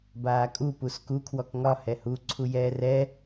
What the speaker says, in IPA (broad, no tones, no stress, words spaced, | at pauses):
baːkʼu pusku kʰwɔkŋɒ hɛhu ǀʰujɛːrɛ